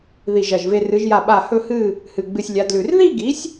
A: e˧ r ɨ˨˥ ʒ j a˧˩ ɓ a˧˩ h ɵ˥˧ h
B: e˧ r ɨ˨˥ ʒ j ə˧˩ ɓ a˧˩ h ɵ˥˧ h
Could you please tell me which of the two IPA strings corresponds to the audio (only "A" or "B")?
A